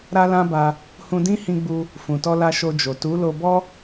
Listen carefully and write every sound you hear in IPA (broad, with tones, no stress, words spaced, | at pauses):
ɾa˦lã˦ba˧ | hũ˧dĩ˦hĩ˧ɡ͡bu˧ | fũ˨tɔ˧la˧ ʃo˧d͡ʒo˨ tu˨˦lo˧bɔ˦